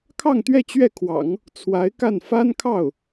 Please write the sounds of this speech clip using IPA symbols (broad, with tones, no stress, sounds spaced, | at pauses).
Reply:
kʰ ɑ˥˧ ŋ t̪ ɥ ɛ˥˧ t͡ɕ ɥ ɛ˥˩ kʰ w ɑ̰˨˩˦ ŋ | t͡sʰ w a˧˥ ɪ̯ k a˥˩ n f a˥ n kʰ ɑ˥˩ ʊ̯